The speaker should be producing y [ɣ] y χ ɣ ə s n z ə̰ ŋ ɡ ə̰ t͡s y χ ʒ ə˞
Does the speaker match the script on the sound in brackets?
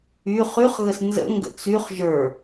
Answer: no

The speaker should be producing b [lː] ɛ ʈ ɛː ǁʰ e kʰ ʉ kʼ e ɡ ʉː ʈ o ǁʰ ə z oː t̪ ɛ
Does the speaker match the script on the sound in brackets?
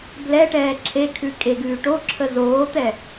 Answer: no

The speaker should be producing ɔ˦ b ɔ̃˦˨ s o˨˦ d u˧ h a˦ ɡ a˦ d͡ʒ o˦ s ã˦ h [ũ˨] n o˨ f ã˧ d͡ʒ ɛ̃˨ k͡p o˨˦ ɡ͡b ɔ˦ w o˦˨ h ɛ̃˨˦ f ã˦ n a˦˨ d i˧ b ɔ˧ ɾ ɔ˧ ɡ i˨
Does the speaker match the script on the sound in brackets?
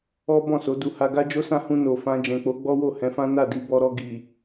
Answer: no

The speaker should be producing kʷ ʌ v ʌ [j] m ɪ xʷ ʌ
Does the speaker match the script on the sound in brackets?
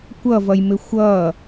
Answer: yes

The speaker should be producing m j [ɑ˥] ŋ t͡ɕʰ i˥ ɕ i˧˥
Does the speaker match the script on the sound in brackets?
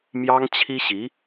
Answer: yes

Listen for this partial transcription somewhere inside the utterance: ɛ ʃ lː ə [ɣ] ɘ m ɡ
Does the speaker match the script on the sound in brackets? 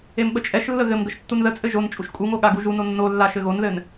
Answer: yes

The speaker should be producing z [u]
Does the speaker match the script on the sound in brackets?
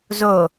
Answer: no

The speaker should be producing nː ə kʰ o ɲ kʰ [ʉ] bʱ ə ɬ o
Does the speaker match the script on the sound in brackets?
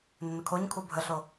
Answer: no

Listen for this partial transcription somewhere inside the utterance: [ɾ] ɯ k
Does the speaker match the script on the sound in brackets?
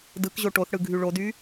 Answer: no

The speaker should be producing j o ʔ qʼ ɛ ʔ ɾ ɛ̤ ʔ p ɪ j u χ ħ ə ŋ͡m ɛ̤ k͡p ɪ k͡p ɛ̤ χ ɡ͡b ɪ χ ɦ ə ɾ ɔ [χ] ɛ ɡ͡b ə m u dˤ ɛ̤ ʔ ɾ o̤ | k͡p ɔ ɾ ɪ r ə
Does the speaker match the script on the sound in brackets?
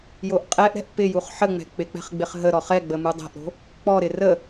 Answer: yes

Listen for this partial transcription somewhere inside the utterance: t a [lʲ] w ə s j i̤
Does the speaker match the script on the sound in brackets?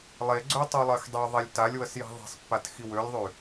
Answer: yes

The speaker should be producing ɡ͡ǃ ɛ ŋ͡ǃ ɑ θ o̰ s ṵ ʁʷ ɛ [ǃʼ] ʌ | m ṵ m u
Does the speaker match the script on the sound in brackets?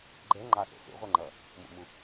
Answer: no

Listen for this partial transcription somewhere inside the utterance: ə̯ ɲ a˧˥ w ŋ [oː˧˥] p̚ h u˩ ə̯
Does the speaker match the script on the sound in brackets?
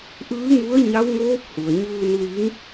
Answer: yes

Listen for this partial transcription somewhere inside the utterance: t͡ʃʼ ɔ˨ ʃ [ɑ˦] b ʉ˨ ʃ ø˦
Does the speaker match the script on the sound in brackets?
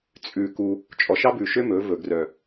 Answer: yes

